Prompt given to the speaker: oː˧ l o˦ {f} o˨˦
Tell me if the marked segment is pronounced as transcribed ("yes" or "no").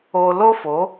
yes